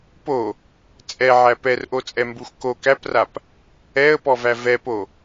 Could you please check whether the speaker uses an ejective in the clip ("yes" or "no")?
yes